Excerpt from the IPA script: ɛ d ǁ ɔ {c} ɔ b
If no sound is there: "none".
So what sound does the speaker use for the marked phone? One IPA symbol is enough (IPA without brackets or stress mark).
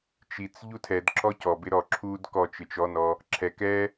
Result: c